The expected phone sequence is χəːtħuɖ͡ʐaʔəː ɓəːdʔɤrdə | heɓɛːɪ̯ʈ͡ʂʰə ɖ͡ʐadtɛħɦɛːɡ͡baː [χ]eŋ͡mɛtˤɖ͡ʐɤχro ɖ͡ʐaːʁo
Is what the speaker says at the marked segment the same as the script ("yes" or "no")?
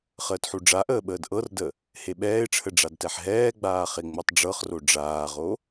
yes